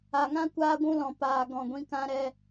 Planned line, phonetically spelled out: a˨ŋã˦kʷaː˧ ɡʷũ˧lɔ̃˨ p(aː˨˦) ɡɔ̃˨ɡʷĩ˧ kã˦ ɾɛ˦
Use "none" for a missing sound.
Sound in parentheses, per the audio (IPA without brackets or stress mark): aː˨